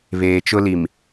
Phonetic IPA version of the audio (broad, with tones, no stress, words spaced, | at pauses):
βeː˨t͡ʃʊ˦li˨m